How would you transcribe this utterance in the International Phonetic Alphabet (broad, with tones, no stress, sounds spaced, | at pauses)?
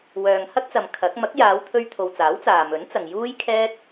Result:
w œː˨ ŋ h ɐ˥ k̚ t͡s ɐ˨ m kʰ ɐ˨˥ k̚ m ɐ˨˥ k̚ j aː˨˧ w t̪ʰ ɵ˧ ɥ t̪ʰ o˨ w t͡s aː˨˥ w t͡s aː˨ m ɵ˨˥ n t͡s ɐ˨ ŋ j uː˥ j kʰ ɛː˥ t̚